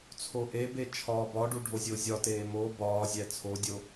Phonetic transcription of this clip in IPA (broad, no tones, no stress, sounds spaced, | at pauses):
t͡sʰ o ʔ e b e t͡ʃʰ ɒː b ɒ ɖ u ɖʱ o zʲ o zʲ ɒ t eː m o b ɒː zʲ æ t͡sʰ o dʲ o